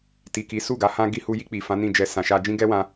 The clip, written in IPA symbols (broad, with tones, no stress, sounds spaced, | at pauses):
t i˨ k i˨˦ s u˦˨ ɡ a˨˦ h ã˦ ɡ i˧ h u˧ j i˧ k͡p i˨ f ã˨˦ n ĩ˦˨ d͡ʒ ɛ˧ s ã˨ ʃ a˧ d͡ʒ ĩ˦ ɡ ɛ˦ w ã˧